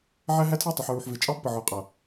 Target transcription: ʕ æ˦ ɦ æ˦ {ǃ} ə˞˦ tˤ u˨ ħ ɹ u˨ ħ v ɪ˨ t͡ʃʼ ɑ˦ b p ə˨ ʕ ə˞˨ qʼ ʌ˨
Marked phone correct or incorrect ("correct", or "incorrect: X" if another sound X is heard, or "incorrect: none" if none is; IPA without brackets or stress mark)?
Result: incorrect: tʰ